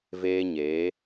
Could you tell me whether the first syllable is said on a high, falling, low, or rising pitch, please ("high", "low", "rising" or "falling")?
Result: high